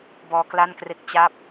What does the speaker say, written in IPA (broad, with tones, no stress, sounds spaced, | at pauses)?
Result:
b ɔː˧ k l a˥˩ n k r e˥˩ k̚ t͡ɕ a˥˩ p̚